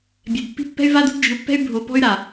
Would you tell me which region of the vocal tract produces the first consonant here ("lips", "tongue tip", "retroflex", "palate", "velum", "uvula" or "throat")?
lips